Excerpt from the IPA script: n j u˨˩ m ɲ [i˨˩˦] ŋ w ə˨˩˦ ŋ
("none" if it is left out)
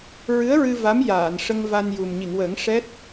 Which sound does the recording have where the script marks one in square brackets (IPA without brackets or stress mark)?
i˨˩˨